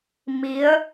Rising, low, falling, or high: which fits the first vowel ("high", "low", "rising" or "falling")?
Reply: rising